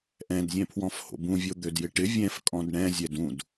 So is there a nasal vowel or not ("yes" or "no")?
yes